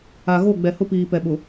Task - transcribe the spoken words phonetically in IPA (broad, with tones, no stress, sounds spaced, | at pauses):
a˨ ɣ o˦˨ ɡ͡b ɛ˨ h ʊ˦ p iː˨ p ɛ˨ ɓ ʊ˨